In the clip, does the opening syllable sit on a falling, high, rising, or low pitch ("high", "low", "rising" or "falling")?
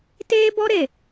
high